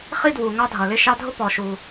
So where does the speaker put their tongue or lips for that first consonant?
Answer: uvula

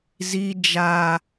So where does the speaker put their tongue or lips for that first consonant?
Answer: tongue tip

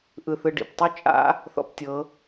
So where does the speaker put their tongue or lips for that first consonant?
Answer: throat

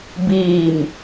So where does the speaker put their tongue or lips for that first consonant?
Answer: lips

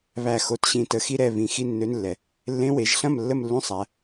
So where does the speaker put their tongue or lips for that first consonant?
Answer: lips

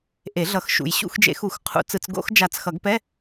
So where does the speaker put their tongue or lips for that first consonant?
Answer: throat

